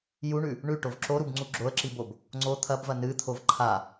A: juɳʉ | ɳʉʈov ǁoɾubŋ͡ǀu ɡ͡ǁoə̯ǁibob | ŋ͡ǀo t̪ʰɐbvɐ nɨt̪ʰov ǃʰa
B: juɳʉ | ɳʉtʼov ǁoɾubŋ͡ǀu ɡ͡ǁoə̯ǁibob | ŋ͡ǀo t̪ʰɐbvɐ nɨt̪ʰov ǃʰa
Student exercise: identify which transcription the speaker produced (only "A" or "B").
A